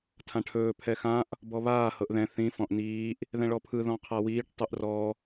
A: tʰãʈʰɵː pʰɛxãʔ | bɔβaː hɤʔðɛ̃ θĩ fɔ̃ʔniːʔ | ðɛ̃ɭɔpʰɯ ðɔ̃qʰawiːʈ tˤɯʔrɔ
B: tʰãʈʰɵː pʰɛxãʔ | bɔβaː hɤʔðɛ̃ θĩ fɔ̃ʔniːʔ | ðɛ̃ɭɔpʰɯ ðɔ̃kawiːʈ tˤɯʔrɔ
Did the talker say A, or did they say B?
A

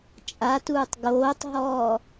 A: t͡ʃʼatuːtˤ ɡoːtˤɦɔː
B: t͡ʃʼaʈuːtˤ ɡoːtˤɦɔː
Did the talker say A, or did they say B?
A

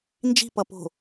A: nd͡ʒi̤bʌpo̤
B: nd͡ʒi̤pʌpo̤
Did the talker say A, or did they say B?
B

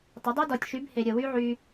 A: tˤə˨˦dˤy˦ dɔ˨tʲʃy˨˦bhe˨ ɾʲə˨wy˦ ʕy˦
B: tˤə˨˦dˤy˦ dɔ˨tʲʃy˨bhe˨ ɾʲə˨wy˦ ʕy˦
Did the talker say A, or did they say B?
A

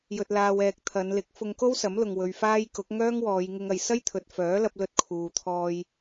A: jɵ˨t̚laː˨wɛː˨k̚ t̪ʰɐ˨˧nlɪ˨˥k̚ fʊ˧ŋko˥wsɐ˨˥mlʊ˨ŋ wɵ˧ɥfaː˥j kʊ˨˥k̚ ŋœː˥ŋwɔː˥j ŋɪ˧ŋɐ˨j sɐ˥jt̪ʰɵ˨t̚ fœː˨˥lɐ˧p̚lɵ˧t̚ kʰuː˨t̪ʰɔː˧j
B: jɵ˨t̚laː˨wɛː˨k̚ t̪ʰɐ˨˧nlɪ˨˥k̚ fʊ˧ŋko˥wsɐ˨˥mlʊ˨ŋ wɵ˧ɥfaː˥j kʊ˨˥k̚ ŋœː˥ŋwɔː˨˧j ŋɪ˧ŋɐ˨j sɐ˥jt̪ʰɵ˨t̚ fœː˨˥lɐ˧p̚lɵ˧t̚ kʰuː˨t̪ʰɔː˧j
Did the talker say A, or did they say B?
B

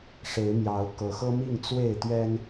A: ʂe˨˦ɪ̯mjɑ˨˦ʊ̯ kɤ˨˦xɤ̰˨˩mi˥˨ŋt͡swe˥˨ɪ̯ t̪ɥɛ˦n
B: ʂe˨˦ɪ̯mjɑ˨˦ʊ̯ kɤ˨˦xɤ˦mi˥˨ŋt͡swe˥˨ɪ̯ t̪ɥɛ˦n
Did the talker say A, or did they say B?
B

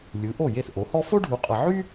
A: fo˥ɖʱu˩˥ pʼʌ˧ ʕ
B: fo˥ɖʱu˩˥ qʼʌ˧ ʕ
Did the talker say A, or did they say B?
B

